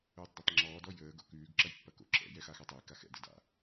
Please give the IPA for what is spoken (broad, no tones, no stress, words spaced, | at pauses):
ʉːtˤdatˤŋ͡ǁɔːd ɔjəː ɡo̰kʉːɡ ǁɐjpːɐko̰ ǁɛ̰ jɛxaxɔtˤɛj kaxɛ̰ dɘda̰